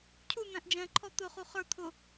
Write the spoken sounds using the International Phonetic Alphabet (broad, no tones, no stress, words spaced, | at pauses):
cʰun̪æ̃ʔ d͡ʒɛ̃ǃʰɔ t̪ʊχu χə˞ t̪ʰʊ